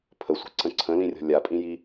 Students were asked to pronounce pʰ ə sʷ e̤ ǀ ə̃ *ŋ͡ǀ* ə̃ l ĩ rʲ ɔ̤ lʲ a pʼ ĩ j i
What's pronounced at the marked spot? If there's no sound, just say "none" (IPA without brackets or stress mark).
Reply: ǀʰ